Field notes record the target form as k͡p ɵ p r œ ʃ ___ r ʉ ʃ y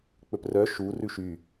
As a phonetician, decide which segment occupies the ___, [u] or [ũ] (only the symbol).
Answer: u